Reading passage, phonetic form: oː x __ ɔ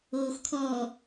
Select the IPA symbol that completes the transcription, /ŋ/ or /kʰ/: kʰ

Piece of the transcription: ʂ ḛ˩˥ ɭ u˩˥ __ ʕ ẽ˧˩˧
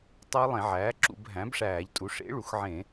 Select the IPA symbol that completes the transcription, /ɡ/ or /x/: x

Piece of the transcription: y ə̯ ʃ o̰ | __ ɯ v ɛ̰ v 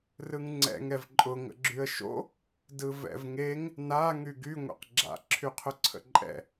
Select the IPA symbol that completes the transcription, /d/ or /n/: d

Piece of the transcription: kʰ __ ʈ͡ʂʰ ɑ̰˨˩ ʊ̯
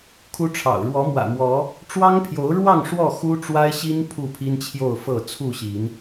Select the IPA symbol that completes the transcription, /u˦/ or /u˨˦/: u˦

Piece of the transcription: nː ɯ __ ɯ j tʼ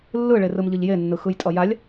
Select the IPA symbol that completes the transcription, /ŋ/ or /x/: x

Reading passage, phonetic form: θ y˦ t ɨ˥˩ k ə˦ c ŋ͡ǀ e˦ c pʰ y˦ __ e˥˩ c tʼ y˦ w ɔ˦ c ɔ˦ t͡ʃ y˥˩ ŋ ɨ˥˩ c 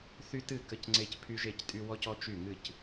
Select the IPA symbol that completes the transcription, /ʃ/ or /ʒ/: ʒ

